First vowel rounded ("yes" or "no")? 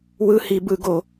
no